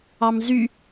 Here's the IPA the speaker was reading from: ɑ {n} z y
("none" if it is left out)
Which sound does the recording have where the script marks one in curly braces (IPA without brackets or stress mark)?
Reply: m